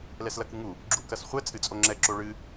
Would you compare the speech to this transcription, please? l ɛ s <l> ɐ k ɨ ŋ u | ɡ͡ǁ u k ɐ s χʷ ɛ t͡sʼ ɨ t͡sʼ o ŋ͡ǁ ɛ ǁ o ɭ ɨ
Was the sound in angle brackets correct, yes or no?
yes